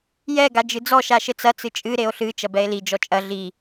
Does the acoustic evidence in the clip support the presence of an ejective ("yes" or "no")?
yes